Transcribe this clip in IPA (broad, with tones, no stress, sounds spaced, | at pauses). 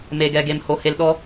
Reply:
m e˨ ɡ ɛ˨ ɡ e˨ m h o˨ h e˨ l ɗ ɔ˦